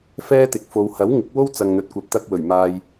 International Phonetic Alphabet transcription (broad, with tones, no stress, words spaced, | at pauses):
fɛː˥t̪ɪ˨k̚ fo˨˧w hɐ˨˥wŋɪ˨˥k̚wo˥w t͡sɐ˧ŋn̪ɵ˧t̚kʷɐ˧p̚ t̪ɐ˧k̚ wɵ˨˩ɥ maː˧j